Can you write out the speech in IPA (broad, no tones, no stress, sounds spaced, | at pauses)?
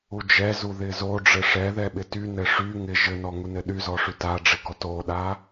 u d͡ʒ ɛ z u ð ɪ z o ɖ͡ʐ ɘ ʂ ɛ ð ɛ ɓ ɪ t y n ɘ ʂ y ŋ ɪ ʒ ɘ n ɔ ŋ u n ɘ ɗ y z ɔ ʂ y t a ɖ͡ʐ ɪ ɡ ɔ t o ɗ a